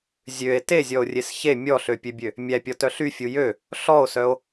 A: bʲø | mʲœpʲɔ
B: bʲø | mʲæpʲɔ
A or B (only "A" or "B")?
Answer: B